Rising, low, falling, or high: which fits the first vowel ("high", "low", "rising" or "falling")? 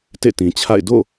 falling